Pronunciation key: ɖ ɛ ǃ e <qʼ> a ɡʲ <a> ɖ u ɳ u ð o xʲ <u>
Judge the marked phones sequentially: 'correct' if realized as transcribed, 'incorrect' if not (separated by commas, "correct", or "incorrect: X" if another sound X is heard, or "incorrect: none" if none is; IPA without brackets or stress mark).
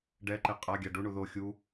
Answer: correct, correct, correct